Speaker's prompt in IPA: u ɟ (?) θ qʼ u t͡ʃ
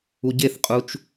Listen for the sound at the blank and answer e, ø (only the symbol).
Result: e